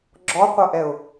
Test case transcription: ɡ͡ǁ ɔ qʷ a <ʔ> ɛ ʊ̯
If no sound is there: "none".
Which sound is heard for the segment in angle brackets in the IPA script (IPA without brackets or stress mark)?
ʔ